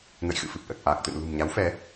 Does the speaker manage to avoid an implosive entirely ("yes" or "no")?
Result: yes